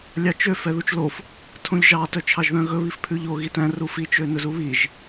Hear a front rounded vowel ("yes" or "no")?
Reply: yes